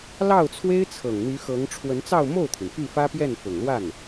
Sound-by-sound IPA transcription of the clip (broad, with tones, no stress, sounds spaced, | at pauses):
l ɑ˥˩ ʊ̯ t͡sʰ w e˥ ɪ̯ t͡sʰ ɤ˨˩ ŋ n̪ y˧˥ x ɤ˧˥ ŋ ʈ͡ʂʰ w ə˧˥ n t͡s ɑ˥˧ ʊ̯ m o˥˩ ʊ̯ t̪ʰ i˩ n p y˥˩ f ä˥ p j ɛ˥˩ n f ʊ˨˩ ŋ l w a˥˩ n